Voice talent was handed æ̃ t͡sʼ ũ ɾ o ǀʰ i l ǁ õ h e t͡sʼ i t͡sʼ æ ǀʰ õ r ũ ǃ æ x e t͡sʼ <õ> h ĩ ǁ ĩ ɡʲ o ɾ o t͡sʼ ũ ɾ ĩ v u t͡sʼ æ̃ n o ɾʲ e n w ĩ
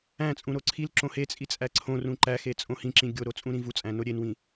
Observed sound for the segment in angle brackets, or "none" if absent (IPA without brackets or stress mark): õ